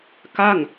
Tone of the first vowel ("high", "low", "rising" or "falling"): falling